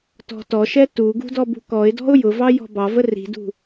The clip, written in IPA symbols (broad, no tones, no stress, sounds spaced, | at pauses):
t ɔ̤ t ɔ ʃ ɛ t u ɡ ṳ d ɔ b ṳ k ɔ ɪ̯ d ɔ̤ ʊ̯ j ʊ v ɑ j ɔ̤ b ɑ v ə r i̤ d ṳ